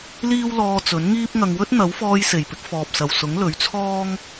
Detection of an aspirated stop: present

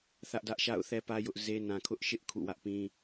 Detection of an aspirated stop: present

